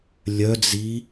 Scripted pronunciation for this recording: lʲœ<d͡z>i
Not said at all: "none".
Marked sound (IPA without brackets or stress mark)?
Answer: d͡z